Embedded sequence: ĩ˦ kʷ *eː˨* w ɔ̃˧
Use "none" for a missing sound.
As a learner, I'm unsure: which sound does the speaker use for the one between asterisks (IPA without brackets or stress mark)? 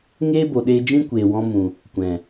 eː˨